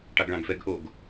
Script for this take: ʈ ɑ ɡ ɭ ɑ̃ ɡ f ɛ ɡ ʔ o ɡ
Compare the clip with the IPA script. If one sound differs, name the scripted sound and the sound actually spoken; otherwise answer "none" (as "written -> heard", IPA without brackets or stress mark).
none